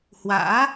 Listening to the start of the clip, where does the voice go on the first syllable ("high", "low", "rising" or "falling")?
rising